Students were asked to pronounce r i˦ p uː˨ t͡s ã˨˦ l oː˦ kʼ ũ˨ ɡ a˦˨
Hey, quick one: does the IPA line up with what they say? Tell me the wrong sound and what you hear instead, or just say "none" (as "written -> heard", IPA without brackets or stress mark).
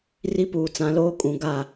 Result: none